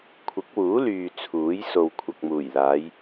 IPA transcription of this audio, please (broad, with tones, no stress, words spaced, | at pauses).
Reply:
kʷʰɪ˨˥k̚wuː˨˥lyː˨ t͡sʰuː˨˥j so˨wkʷʰɐ˨k̚muː˨˩jlaː˨˧j